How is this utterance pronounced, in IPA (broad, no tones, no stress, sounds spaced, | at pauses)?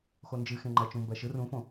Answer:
x o n d͡ʒ ɨ x ẽ ŋ͡ǃ ɜ t͡ʃ ũ m b ɜ ʃ ɯ r ũ f õ